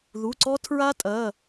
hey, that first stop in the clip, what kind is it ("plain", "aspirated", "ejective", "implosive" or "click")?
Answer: click